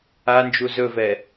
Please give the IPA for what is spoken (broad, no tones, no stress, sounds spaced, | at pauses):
a n d͡ʒ u z ɵ v ɛ